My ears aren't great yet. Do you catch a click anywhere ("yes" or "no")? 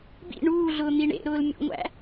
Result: no